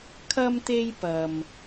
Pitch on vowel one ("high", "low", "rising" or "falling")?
high